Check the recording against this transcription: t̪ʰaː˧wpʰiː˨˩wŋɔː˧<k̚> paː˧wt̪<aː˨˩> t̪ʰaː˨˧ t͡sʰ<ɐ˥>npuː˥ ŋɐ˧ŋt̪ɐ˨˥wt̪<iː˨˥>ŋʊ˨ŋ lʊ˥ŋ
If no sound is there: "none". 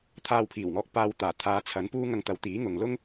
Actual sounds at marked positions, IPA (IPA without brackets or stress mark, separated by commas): k̚, aː˨˩, ɐ˨˥, iː˨˥